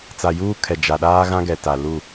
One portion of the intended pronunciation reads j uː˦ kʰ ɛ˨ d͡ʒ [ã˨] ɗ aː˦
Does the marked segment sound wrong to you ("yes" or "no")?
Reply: yes